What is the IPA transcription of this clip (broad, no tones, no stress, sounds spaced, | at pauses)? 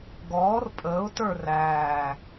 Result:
ɡ ɔː r pʼ əː ʊ̯ t ə˞ r æː